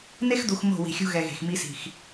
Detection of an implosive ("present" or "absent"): absent